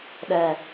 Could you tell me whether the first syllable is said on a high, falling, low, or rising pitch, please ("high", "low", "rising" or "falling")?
low